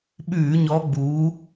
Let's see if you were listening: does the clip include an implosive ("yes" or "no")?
yes